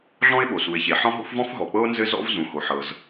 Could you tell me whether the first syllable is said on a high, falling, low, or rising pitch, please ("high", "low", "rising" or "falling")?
high